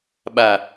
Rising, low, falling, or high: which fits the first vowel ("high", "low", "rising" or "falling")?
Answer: low